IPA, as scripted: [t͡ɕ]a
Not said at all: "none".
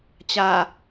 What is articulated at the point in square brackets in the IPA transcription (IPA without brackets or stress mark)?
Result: t͡ɕ